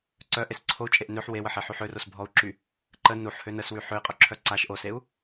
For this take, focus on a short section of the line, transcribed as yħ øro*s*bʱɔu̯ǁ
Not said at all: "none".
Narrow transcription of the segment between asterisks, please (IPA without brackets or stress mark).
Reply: s